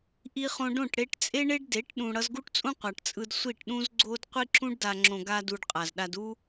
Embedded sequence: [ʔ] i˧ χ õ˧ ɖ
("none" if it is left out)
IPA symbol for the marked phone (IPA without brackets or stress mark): ʔ